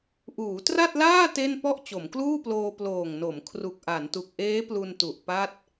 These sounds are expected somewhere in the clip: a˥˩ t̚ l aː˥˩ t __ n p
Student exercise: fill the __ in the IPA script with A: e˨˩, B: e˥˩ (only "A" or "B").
B